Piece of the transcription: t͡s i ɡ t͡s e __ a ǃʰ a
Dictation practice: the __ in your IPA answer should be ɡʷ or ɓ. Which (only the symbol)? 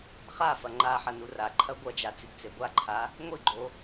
ɡʷ